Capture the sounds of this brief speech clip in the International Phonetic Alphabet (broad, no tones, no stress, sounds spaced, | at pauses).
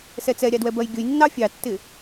s ɛ t͡s ɛ ɾʲ ɑ d w ɛ b ɜ j ɡʲ ʊ j nː ɑ fʲ ɑ tː ɪ